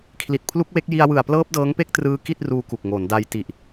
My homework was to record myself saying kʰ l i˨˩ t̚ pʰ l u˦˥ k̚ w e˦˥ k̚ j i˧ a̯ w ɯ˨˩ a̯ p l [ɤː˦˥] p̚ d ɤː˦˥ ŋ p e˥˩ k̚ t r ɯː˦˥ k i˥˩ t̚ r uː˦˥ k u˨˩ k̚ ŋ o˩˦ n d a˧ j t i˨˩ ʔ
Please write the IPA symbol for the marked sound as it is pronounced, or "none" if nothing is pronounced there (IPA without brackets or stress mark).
ɤː˦˥